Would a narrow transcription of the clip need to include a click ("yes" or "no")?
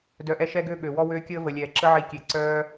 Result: yes